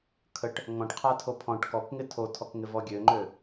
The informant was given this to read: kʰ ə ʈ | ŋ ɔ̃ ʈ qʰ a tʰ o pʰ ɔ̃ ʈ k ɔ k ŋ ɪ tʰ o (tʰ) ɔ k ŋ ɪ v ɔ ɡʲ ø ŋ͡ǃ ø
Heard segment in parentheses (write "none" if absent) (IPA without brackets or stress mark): tʰ